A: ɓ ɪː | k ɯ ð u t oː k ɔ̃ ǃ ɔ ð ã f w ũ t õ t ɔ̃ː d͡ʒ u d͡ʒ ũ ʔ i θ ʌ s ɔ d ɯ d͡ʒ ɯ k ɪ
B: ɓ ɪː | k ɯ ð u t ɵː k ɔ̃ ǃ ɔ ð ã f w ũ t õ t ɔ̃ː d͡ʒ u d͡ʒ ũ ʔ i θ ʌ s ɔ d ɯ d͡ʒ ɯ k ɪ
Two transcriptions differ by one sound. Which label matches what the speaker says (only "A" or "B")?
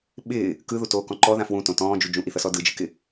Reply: A